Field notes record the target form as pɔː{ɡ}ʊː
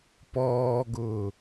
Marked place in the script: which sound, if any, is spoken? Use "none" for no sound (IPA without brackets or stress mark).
ɡ